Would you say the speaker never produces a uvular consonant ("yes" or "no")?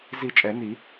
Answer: yes